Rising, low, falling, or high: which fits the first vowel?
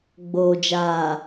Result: low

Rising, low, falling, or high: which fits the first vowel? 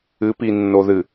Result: rising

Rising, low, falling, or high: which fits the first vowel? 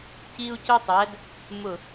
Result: high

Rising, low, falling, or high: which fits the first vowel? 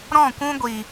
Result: falling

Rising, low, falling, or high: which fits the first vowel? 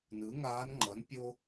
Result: rising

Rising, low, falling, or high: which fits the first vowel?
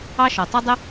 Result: high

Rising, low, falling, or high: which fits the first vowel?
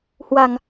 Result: low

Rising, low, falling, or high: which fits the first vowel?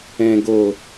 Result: low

